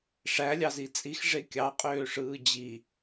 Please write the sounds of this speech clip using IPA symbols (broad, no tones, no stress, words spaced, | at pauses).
ʂælʲɑzi t͡sʼixʐe kʲɑqʼøːʂɯː d͡ʑi